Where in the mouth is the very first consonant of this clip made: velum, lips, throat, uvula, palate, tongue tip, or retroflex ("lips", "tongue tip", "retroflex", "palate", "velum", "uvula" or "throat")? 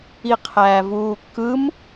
uvula